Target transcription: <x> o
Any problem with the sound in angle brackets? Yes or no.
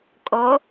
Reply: yes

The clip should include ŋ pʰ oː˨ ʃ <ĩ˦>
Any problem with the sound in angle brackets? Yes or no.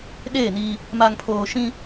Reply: no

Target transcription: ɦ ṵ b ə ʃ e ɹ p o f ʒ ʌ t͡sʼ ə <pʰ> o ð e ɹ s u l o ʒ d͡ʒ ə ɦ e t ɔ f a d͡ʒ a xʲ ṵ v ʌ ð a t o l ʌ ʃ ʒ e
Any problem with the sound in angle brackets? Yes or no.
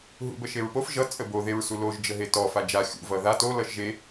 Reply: yes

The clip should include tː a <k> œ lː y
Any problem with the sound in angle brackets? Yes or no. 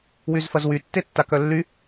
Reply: no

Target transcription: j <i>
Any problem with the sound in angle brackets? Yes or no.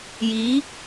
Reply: no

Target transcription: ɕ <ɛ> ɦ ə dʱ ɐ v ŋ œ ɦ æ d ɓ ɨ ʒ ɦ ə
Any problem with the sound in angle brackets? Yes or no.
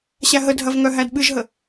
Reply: yes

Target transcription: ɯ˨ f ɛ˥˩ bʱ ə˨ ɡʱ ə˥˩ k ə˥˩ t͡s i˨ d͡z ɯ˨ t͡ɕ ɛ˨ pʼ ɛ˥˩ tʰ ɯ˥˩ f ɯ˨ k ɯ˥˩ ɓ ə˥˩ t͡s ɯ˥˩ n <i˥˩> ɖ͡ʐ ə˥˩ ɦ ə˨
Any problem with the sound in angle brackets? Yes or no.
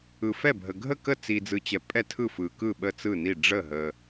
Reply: no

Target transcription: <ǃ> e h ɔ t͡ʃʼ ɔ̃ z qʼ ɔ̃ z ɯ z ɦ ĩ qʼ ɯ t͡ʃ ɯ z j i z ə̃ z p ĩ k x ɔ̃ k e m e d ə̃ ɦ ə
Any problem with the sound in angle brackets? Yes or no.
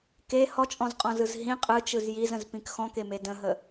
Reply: yes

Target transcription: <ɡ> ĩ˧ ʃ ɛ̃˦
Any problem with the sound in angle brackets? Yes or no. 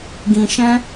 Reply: no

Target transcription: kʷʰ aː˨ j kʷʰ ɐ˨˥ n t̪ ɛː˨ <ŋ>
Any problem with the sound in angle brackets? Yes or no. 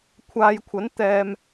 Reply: yes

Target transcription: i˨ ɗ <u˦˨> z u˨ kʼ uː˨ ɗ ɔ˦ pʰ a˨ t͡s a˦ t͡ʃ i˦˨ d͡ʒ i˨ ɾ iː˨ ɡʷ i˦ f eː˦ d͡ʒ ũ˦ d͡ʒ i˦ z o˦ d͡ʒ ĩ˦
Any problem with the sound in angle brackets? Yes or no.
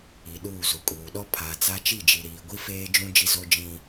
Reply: yes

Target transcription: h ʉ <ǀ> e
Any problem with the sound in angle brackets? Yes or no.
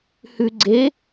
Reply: yes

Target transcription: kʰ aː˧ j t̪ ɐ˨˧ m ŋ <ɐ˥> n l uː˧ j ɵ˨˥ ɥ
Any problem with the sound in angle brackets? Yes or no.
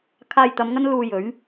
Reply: no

